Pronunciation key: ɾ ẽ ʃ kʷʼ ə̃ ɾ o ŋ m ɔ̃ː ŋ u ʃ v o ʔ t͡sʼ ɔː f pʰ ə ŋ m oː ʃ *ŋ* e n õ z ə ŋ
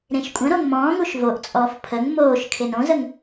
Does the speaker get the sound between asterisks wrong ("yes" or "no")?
yes